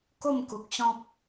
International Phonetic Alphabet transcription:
k o˥˧ m k u˨ k̚ ɕ ɔ̃˦ p̚

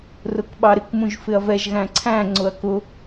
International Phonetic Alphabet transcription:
r ʊ k ɓ ɑ ɾ ɪ k m ũ ʒ f ɪ ɐ̯ v ɛ ʒ ɣ æ̃ ǀʰ æ̃ ŋ͡ǀ ʊ ɐ̯ k ʊ

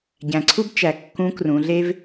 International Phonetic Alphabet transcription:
ɟ æ̃˩ ǀʰ u˥ b t͡ʃ æ˩ kː ũ˧˥ k r ũ˩˧ ɮ e˥ v

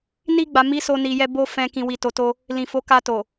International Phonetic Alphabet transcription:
n i˧ ɡ͡b a˨ m i˨˦ s o˧ n i˨ j ɛ˧ b o˦ f ɛ̃˧ k ĩ˨ w i˨ t o˧ t o˦ | l ĩ˨ f o˨˦ k a˧ t o˨

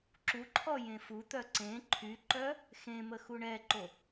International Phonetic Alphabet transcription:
ǁ u ǃʰ ɔ j ẽ f u t̪ œ ǀ ẽ ǃʰ y ǃ œ | x ẽ m ə x u ɳ ɛ ǃ o

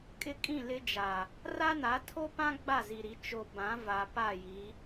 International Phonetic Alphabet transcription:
kʼ ɪ˦ kʼ ĩ˦˨ l ɪ˦ d͡ʒ a˨ | r a˦ n a˨˦ tʰ o˦ p ã˦ ɡ͡b a˦˨ z i˨ ɾ i˨˦ t͡ʃ o˨ b ã˨˦ v a˨ p a˦˨ j i˨˦

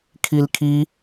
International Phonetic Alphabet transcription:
kʰ i l kʰ i

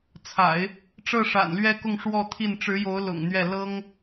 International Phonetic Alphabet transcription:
t͡sʰ a̰˨˩˦ ɪ̯ | ʈ͡ʂ ɤ˥˩ ʂ a̰˨˩ n l ɥ ɛ˥ k ʊ˥˧ ŋ ʂ w ɔ˥˧ t̪ʰ i˥˩ n ʈ͡ʂ ɻ̩˧˥ j o˧˥ ʊ̯ l ʊ̰˨˩ ŋ n̪ ɥ ɛ˥˩ l ɤ˥ ŋ

